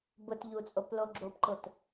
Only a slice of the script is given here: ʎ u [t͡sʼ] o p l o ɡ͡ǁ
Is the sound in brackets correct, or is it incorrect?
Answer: correct